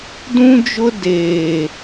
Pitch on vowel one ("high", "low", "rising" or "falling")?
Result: high